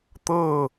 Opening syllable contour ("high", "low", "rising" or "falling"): falling